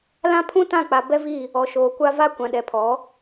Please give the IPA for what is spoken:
lã˦pʰũ˦tã˦˨k͡pa˨ bɛ˦vi˦˨ | ɔ˨ʃoː˨kʷa˦ va˦ kʷã˨ɗɛ˨pʰɔ˨˦

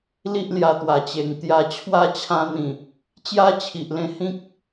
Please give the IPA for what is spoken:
li˦ʔlja˧ t̪wa˨˩t͡ɕe˨˩ŋt̪ja˧ t͡ɕʰwa˦ t͡ɕʰã˧n̪ĩ˨˩ | t͡ɕja˦t͡ɕʰi˨ʔlẽ˧ hĩ˦k̚

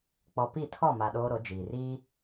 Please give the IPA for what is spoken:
k͡pɔ˨ pi˦˨tʰɔ˦˨ma˨ ɗoː˦ɾo˨˦ d͡ʒiː˨ riː˦

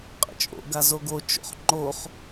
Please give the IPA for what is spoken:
qʼə̰t͡ʃʼo̰ ɡazoɡo t͡ʃo̰χŋ͡ǃoχ

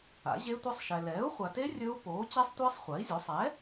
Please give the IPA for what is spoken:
a̰˩˥ʑe˦˥tʷa˦˥sˤʃɛ˨ lɛː˩˥u̯χʷa˨te˦˥ rʲɵ˦˥u̯ poː˩˥ t͡ɕe˦˥sˤtʷɪː˦˥sˤ χʷa˩˥i̯zʲo˩˥sˤ ɛ˩˥

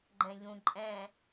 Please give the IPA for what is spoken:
ɡ͡ǃɛ̃ʎũ ǃʼɛ̃

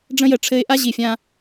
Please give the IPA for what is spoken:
ɖ͡ʐə̃˦jə˨ʈ͡ʂʰɘ˦ɪ̯ ʔa˦ ʑi˨fʲã˦

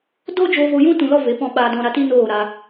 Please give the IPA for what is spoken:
do˦ d͡ʒoː˧vo˧jũ˦ tũ˧lɔ˦ve˨˦ pɔ̃˧ɓaː˧dɔ̃˧ ɾa˧ti˦noː˦˨ɾa˧

